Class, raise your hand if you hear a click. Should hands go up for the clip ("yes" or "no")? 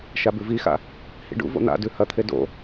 no